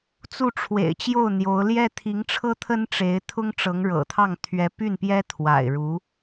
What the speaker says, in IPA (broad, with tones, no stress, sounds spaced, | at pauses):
t͡s u˥˩ ʈ͡ʂʰ w ḛ˨˩ ɪ̯ t͡ɕ j o˥˩ ʊ̯ n̪ j o˧˥ ʊ̯ l j ɛ˥ t̪ʰ i˧˥ ŋ ʈ͡ʂʰ ɤ˥ t̪ʰ ə˥ n ʈ͡ʂ e˧˥ ɪ̯ t̪ʰ ʊ˥ ŋ ʈ͡ʂ ɤ˧˥ ŋ ɻ ɤ̰˨˩ t̪ʰ ɑ˥˩ ŋ t̪ʰ ɥ ɛ˧˥ p y˥˩ n p j ɛ˥ t̪ʰ w a̰˨˩ ɪ̯ ɻ u˧˥